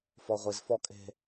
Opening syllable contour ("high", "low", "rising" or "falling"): low